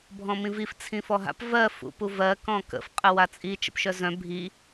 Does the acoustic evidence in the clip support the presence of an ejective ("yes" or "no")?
yes